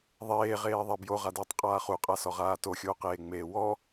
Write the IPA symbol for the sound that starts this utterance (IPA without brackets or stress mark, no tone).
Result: ðˤ